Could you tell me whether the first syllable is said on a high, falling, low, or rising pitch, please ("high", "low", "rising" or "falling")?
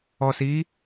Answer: low